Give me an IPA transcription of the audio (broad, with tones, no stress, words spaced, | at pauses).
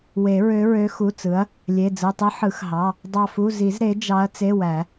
we˨˩˦ɹø˧˥ɹø˧˥ xu˩˧˩ t͡sɯ˩˥ɐ̯ | lʲe˩˧˩ d͡zɯ˩˧˩tˤɯ˧˥ ħɯ˨˩˦xɦɑ˩˧˩ | dˤɑ˦˨fu˧˥˧ zi˨˩˦z ɾe˩˥d͡ʒɑ˧˥ɐ̯ t͡se˧˥˧wæ˨˩˦